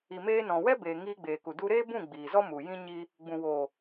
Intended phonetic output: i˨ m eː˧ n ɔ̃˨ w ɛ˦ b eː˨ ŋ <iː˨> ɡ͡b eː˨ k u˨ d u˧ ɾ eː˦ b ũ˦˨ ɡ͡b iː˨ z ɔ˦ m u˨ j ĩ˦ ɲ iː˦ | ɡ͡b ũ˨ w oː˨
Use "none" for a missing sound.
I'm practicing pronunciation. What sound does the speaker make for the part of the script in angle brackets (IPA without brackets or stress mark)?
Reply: iː˧